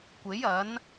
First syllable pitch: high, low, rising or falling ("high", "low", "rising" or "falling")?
rising